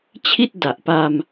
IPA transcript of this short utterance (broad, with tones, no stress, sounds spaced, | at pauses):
t͡ɕʰ i˥˩ t̚ d a˨˩ ʔ p a˧ m